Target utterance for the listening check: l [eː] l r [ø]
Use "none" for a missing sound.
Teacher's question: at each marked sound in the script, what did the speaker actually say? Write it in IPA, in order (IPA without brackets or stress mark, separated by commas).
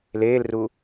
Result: eː, u